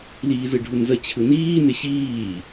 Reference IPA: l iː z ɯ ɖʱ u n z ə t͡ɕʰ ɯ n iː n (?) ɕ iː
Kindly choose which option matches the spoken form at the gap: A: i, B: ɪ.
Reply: B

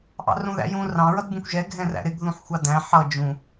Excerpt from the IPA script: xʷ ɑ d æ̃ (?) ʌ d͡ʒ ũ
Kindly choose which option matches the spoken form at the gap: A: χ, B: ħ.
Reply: B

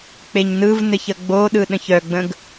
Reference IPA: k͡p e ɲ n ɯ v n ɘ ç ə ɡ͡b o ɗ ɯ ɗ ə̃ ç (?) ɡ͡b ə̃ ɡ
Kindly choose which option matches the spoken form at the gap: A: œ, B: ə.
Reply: A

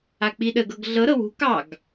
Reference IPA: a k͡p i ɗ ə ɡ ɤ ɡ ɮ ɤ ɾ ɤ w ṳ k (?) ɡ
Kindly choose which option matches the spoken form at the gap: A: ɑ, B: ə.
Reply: A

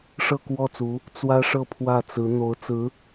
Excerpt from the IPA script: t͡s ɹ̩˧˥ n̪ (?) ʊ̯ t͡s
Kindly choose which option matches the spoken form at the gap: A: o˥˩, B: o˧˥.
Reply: B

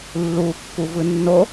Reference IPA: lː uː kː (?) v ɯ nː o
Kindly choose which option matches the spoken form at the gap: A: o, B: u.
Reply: B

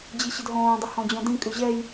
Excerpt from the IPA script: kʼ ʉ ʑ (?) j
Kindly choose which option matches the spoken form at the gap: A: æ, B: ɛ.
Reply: B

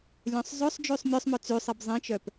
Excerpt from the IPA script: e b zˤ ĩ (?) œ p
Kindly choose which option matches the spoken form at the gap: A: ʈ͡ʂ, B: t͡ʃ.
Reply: B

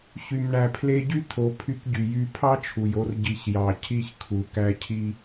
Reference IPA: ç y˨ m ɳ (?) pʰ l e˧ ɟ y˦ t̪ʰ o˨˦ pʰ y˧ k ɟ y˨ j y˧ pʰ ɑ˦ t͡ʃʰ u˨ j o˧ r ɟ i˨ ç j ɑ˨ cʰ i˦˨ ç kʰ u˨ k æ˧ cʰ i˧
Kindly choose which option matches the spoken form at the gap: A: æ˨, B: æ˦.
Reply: A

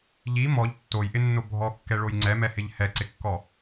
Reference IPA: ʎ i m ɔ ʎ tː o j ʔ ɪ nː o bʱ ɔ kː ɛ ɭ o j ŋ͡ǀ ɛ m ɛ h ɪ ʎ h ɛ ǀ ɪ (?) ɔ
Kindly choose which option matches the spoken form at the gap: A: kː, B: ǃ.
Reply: A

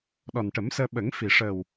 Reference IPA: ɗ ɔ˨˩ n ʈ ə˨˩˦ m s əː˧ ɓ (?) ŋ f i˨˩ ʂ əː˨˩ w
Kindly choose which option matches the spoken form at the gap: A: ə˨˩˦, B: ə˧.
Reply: A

